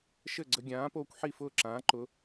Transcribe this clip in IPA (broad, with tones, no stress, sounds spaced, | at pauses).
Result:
ʃ ɘ˥˩ ɡ͡ǀ ə˧ ɡʲ ãː˩˥ p oː˧ kʷ ħ i˥˩ f ʊː˥˩ ǁ ãː˩˥ ǃ ʊ˩˥